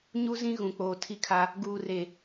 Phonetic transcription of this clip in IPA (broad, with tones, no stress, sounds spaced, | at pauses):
ɲ u˦ z ĩ˦ ɣ ũ˨ k͡p oː˨ tʰ i˦ kʰ a˦ | ɡ uː˨ r e˨